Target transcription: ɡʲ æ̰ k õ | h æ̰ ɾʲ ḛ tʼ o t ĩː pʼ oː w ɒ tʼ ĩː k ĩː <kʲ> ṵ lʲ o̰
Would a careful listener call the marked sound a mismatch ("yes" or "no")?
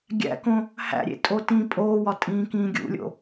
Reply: yes